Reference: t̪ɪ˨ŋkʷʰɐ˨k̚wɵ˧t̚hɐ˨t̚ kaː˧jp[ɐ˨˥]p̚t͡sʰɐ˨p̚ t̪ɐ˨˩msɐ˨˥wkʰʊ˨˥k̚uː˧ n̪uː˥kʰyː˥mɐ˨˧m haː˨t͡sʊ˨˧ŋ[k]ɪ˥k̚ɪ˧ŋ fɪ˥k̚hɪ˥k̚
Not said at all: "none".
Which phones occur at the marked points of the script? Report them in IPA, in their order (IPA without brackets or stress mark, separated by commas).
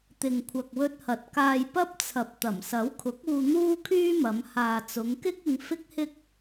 ɐ˥, k